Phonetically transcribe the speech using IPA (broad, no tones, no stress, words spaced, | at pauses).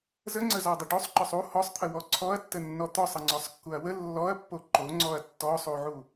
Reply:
zəŋ͡ǀəzɔdˤə ɖosˤǃœsˤ u hɔsˤt̪ʰəwɔ ǀʰɔɐ̯tːənːɔ t̪ɔsˤəŋ͡ǀɔsˤkːuɐ̯ wə lːɔɐ̯pːo ǃoŋ͡ǀɔɐ̯ tːɔsˤuʕu